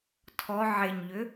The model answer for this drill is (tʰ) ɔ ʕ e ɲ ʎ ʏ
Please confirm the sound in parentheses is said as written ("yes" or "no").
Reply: yes